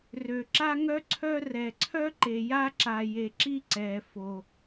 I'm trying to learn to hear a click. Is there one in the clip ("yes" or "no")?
yes